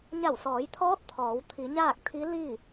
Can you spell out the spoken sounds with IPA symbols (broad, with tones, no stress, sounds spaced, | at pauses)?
ɲ a˧˩ w s ɔː˩˧ j t̪ʰ ɔː˧˥ t̚ t̪ʰ ɔː˩˧ w t̪ʰ i˩˧ ɲ aː˥˨ k̚ t̪ʰ i˧˥ l i˥˨